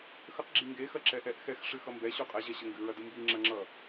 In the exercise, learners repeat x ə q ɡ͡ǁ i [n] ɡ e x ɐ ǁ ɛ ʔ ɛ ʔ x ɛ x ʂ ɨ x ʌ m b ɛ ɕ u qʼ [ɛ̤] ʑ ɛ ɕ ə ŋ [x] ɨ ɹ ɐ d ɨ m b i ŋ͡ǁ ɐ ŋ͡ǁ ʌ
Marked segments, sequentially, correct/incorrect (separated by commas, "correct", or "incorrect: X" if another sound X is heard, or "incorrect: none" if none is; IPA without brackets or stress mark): incorrect: ŋ, incorrect: ɛ, incorrect: ɡ